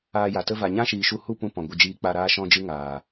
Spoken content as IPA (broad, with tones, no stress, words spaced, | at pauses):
aː˧ja˨tə˦ va˨ɲã˦ʃiː˨ʃu˧ hu˦˨pũ˧ pɔ̃˨ɡʷə˧d͡ʒiː˧ k͡pa˧ɾaː˦ ʃɔ̃˦d͡ʒɨ˦ ŋaː˨